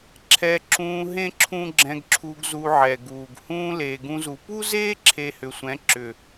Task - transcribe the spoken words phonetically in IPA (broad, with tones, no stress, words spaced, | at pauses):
ǁʰɛ˧ǁũː˧ɦẽ˦ ǁʰũ˦ɡ͡ǁɛ̃˧ɡǁʰu˧ɡ zu˧ʕɛ˨ɡuː˨ɡ hũː˧ leː˨ɡũ˧zu˨ pu˦zeː˦ ǁʰe˧hʏ˨sʷɛ̃˨˦ ǁʏ˨